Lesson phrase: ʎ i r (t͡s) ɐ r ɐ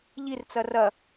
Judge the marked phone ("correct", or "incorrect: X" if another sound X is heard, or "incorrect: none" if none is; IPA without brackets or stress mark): correct